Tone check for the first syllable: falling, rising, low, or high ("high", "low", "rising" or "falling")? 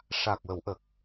low